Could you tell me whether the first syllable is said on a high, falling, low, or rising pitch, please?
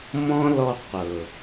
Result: high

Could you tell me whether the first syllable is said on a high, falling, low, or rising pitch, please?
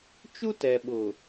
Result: high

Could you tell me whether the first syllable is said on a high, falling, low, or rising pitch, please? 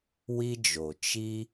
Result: high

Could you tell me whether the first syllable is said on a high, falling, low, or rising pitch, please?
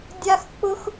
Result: high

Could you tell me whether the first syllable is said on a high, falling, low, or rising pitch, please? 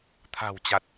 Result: low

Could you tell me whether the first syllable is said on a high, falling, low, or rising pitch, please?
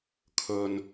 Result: low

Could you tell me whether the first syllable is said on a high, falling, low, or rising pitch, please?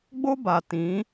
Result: high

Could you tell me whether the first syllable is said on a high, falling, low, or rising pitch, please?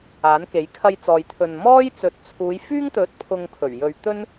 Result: rising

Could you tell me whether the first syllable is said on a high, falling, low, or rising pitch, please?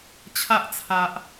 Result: high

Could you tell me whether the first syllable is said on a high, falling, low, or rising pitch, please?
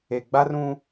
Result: low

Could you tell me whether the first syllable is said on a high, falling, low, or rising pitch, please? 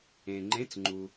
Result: low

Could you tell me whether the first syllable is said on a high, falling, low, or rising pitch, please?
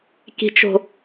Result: low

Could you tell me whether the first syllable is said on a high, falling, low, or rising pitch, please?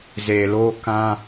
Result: low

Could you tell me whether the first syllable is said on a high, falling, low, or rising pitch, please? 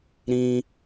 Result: high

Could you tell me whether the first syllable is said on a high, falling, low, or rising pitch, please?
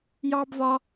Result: high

